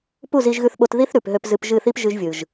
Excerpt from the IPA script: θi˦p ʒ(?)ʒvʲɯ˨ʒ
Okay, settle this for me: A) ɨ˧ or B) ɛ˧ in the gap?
A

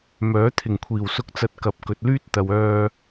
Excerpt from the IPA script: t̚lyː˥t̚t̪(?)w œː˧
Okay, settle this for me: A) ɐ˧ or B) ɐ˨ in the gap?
B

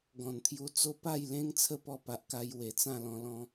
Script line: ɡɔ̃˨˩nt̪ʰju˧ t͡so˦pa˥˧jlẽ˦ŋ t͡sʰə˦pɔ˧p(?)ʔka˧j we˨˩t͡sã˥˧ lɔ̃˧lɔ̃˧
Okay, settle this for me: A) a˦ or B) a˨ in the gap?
B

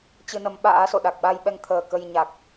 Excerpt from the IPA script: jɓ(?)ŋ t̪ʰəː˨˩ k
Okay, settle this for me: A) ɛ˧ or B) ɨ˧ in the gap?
A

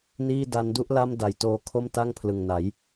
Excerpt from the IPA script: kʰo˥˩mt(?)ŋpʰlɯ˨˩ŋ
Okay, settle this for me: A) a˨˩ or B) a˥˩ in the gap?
B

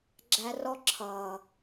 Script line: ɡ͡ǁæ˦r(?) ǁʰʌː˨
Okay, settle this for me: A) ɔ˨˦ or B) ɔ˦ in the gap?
B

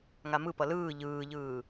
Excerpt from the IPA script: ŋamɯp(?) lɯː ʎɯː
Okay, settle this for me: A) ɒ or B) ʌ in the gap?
B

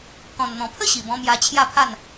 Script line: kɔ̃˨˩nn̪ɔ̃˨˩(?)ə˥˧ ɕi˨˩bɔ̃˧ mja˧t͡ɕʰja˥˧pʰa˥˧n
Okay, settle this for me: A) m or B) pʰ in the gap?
B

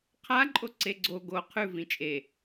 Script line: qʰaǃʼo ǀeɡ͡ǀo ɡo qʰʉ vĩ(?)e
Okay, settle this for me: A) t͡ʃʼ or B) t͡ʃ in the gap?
A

